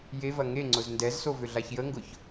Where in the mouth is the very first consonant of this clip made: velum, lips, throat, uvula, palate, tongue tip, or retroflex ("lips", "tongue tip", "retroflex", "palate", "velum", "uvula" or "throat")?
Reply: palate